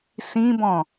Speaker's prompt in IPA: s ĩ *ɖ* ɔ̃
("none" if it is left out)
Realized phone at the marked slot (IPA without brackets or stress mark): b